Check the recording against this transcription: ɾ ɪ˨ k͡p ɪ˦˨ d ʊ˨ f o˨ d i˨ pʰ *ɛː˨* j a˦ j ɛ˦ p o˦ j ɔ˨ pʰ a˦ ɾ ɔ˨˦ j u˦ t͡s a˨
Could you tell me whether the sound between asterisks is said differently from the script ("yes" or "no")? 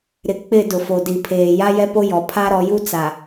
yes